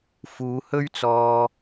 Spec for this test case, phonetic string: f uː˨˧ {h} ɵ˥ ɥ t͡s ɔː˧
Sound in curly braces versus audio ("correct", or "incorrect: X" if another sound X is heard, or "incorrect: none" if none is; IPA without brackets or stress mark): correct